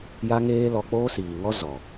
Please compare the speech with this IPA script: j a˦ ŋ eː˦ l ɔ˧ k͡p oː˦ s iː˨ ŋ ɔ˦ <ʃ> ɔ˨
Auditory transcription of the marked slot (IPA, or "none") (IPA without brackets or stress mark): z